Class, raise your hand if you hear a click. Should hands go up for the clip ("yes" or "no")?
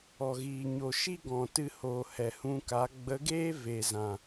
no